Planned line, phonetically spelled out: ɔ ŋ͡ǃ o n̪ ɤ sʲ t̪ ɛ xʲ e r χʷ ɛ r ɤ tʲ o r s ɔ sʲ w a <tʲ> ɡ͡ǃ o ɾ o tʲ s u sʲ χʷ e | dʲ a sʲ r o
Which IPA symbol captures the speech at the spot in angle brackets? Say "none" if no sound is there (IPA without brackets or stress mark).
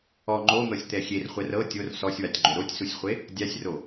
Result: tʲ